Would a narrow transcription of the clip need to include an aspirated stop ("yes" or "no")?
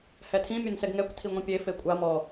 yes